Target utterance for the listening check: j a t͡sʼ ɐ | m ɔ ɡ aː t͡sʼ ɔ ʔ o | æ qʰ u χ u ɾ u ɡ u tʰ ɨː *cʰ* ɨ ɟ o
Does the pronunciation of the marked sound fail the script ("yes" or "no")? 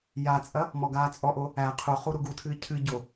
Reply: no